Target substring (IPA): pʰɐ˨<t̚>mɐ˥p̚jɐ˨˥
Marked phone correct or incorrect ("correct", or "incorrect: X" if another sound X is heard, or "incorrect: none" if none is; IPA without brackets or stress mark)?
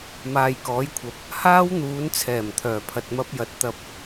correct